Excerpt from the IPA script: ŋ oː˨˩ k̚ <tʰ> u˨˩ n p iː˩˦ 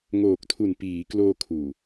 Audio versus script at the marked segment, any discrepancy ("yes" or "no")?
no